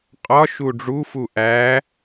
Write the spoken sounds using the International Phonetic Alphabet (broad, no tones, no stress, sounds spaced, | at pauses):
qʼ ɒ ʃ u ɖ͡ʐ u f u ʔ æ